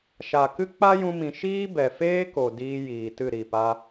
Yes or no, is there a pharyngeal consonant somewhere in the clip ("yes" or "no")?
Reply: no